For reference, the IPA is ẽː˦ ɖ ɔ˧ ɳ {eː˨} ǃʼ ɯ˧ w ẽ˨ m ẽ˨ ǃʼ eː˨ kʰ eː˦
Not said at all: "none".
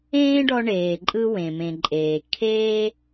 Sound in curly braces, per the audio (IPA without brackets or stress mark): eː˨